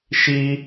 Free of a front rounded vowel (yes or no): yes